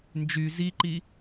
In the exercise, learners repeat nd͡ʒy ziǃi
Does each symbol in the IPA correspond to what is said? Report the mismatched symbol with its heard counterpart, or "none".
none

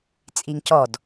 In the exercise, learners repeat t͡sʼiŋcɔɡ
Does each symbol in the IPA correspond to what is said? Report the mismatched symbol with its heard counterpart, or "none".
ɡ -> d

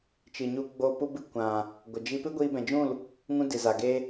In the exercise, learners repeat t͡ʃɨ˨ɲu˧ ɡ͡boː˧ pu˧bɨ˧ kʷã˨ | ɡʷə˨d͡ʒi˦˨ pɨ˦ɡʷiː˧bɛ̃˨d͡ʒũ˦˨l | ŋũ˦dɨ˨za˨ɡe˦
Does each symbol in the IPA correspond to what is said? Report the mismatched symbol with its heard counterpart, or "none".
i˦˨ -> i˦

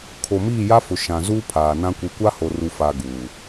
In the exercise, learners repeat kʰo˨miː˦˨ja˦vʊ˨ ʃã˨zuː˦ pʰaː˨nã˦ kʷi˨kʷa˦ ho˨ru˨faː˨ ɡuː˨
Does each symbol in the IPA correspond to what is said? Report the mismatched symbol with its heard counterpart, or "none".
v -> f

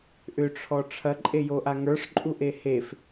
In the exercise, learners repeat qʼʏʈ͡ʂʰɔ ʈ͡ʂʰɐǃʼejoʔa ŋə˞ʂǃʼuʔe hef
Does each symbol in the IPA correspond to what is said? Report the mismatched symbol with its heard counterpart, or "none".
qʼ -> ʔ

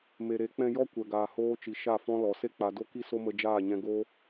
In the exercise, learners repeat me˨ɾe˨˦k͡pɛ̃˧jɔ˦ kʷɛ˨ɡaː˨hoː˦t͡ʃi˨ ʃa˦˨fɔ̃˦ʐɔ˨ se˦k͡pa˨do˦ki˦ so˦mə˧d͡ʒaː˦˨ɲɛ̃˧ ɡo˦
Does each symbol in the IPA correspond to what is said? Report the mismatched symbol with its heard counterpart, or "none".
ʐ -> l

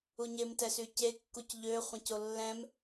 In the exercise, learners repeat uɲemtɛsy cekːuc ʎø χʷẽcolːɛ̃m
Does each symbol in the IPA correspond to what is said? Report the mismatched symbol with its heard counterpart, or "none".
none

